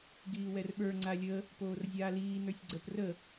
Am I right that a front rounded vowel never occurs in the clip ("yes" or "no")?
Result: yes